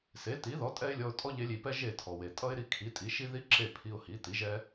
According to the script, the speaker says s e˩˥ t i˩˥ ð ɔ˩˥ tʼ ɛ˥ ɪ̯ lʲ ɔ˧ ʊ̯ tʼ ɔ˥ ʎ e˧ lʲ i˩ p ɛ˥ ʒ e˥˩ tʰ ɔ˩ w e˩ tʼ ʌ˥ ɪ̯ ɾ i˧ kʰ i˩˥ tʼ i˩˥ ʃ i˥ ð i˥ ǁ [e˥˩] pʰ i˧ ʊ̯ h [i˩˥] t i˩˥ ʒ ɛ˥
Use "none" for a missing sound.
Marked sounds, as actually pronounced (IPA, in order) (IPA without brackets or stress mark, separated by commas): e˥˩, i˩˥